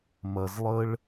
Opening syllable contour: low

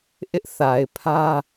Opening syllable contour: high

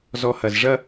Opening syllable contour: low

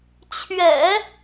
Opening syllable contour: low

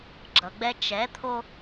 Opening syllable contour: low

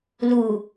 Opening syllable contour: low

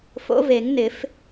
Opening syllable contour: rising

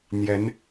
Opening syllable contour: rising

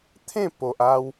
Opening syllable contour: falling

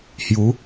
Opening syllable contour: rising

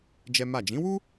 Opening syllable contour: high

